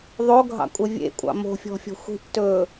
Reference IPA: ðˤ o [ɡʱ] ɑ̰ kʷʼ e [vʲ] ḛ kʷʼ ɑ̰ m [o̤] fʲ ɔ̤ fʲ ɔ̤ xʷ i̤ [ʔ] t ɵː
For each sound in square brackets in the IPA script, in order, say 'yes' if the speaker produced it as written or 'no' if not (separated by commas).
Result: yes, yes, yes, yes